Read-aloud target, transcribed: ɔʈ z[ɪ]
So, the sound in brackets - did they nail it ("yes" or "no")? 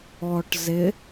yes